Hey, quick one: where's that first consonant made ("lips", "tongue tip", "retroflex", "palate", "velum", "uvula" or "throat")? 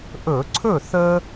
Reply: throat